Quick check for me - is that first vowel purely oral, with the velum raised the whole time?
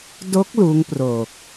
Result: yes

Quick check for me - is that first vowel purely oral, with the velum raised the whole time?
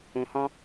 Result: no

